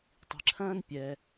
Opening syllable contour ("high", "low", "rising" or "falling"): low